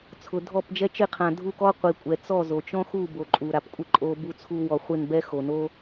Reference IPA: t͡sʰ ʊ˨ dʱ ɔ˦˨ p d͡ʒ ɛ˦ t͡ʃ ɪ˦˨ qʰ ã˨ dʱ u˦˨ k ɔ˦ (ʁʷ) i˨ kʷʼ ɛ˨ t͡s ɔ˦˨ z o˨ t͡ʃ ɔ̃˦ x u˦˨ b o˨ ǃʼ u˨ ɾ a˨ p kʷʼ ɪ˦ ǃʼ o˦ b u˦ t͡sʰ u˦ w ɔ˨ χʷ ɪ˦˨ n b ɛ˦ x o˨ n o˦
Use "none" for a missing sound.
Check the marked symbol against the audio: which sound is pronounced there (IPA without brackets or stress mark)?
qʷ